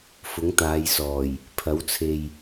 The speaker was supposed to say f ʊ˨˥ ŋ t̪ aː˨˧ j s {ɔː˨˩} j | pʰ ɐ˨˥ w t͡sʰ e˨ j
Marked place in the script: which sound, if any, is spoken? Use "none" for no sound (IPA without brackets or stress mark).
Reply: ɔː˨˩